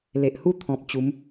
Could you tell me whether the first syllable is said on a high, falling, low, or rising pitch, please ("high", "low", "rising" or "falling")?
low